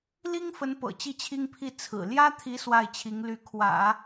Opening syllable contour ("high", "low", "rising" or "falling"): high